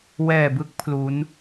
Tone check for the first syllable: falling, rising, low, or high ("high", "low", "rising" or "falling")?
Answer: low